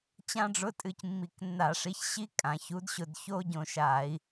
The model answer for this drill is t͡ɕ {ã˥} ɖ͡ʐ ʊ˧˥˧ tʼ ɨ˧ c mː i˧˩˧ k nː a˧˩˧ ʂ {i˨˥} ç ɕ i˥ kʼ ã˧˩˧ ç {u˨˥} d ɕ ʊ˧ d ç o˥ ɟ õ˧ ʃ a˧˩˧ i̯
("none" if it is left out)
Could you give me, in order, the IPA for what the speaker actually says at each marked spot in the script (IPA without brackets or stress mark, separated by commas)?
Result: ã˥, i˨˥, u˨˥